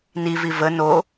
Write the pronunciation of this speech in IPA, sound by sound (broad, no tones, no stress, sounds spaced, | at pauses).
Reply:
n i v i v ə n o